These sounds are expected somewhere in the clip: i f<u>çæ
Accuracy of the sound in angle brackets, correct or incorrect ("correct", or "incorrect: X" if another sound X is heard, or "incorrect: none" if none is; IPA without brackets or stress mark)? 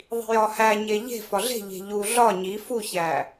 correct